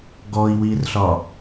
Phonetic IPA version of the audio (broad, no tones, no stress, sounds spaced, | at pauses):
ɡ ɔ i̯ w i r ɬ ɒ